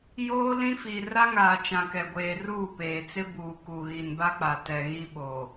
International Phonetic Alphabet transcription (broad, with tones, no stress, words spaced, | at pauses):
joː˦ lĩ˦fi˨ ra˦ŋaː˨ t͡ʃã˨kɛ˨ɡʷeː˨ ruː˦˨peː˨t͡sɪ˦ buː˨ku˨ ɣi˨nba˦k͡pa˨ tɛ˨ɣi˦ɓo˨